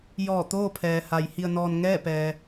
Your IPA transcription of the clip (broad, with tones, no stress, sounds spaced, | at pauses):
j ɔː˧˩ t̪ oː˥˨ pʰ ɛː˩ h a˩˧ j h i˧ ə̯ n ɔː˧ n ŋ ɛː˥˨ p ɛː˩